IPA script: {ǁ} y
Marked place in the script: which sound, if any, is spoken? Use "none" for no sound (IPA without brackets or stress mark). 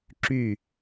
ǁ